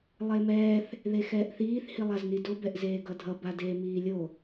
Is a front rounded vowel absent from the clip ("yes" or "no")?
yes